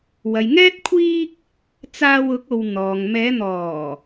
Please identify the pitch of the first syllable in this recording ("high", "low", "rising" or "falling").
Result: low